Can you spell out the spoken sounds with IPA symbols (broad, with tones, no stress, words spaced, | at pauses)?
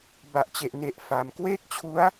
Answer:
ba˨˩ʔt͡ɕe˨˩ʔne˨˩ʔ fa˨˩m kweː˥˩k̚t͡ɕʰu˦˥a̯